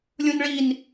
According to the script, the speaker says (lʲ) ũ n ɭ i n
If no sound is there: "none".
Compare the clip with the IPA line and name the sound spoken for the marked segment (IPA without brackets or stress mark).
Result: lʲ